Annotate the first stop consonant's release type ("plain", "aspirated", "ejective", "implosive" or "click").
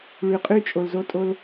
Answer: ejective